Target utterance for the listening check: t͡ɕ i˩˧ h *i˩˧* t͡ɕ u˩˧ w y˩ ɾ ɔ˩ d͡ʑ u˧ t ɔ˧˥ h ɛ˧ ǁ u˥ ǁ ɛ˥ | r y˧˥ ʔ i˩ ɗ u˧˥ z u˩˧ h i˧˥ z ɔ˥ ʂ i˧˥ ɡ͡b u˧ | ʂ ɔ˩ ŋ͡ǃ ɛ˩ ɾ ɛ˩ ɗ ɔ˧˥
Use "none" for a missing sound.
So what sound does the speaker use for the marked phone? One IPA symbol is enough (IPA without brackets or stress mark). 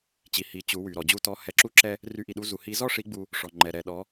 i˩˧